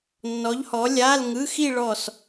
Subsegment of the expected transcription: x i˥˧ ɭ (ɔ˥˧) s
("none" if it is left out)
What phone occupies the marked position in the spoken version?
ɔ˥˧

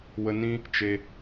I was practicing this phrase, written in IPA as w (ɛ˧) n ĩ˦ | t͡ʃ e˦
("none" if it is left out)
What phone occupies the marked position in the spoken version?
ə˧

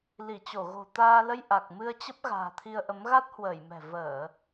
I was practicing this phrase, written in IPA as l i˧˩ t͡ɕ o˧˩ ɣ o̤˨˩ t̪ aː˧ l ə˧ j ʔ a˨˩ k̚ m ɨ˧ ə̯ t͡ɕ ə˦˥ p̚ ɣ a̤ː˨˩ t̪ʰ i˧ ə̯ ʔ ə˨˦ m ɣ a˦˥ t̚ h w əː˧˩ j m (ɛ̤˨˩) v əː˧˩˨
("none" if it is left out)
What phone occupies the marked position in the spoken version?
ɛ̤˨˩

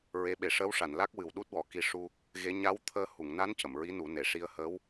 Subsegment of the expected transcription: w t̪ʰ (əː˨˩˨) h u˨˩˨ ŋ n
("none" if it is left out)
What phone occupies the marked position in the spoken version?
əː˧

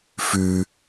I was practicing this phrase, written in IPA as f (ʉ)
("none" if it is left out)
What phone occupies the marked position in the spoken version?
ʉ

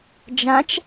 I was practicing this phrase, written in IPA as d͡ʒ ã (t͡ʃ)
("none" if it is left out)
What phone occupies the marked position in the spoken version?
t͡ʃ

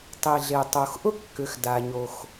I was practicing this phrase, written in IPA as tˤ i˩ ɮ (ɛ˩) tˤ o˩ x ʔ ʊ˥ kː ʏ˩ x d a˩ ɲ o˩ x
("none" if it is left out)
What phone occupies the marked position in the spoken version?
e˩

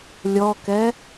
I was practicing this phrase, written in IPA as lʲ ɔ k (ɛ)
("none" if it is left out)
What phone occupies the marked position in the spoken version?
ɛ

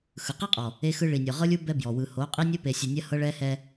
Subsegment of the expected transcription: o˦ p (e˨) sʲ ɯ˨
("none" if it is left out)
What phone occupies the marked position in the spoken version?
e˨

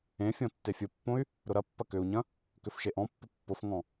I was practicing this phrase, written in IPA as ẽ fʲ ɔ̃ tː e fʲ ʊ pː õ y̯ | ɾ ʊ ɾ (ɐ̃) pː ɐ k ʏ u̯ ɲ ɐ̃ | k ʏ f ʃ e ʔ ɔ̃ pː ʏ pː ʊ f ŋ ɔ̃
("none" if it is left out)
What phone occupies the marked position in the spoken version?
ɐ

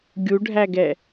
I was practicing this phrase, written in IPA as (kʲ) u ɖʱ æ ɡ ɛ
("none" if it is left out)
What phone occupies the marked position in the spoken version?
ɡʲ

